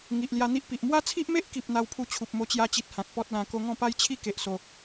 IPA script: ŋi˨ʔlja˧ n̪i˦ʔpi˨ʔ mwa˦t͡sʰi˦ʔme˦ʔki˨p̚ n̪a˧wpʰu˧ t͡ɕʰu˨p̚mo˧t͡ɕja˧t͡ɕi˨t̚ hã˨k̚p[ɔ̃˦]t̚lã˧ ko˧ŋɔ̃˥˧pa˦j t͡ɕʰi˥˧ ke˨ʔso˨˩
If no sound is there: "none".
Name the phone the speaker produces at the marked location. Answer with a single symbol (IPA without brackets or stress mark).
ɔ˦